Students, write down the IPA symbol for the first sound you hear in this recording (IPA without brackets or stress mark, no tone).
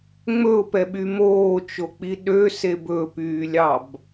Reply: ŋ͡m